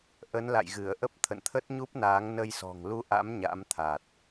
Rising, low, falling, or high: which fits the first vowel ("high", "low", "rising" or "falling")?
rising